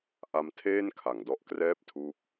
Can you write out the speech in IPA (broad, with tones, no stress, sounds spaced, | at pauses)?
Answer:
ʔ a˦˥ m tʰ eː˥˩ n kʰ a˩˦ ŋ d ɔ˦˥ ʔ k r ɛː˥˩ p̚ tʰ uː˦˥ k̚